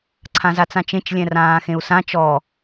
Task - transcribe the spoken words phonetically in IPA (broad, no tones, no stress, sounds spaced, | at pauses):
ǀʰ ã z a t͡s ã t͡ʃ ẽ t͡ʃ lʲ ɛ̃ r ãː x ẽ u̯ s ã t͡ʃ ɔ